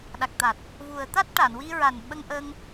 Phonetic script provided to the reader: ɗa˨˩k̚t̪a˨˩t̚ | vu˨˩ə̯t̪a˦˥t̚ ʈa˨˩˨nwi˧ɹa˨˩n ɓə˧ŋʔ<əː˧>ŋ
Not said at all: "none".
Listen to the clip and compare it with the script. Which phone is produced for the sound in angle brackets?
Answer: əː˧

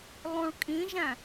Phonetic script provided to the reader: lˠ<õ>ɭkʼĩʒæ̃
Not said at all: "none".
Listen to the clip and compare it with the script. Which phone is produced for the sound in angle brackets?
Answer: ũ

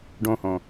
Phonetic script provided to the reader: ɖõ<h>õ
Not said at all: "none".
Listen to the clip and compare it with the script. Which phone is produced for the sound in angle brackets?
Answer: h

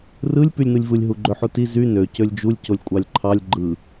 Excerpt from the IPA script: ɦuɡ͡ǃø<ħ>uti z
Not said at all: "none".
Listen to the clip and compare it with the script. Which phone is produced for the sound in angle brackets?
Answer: ħ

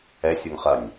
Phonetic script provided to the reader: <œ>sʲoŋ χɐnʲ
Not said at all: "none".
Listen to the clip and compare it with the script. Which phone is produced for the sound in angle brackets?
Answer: ɛ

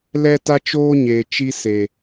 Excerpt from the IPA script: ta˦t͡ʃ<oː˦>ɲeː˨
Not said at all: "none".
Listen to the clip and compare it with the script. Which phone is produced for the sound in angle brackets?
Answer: oː˦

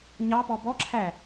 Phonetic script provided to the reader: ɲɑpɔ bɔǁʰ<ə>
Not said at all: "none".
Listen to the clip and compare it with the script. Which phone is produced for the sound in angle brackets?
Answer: æ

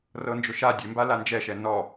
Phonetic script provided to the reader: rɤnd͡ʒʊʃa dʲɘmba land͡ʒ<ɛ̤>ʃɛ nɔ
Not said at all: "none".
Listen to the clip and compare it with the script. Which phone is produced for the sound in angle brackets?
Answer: ɛ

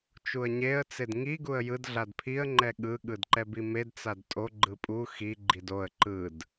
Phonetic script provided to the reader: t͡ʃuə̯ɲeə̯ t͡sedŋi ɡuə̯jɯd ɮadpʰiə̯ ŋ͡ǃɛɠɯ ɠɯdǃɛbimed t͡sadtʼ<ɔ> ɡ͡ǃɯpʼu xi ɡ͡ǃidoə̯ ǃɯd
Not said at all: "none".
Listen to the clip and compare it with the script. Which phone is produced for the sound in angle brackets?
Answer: o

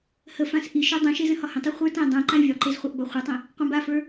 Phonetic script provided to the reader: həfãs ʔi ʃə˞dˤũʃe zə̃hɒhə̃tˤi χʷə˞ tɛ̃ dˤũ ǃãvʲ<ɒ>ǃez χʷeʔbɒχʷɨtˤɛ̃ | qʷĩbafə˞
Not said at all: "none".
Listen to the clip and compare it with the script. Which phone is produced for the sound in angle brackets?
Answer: ɒ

